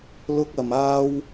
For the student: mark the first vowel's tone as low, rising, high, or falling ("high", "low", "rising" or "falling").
high